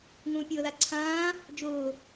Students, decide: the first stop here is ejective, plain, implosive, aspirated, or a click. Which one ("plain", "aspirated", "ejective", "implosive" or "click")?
plain